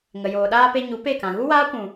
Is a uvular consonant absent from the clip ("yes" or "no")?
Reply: yes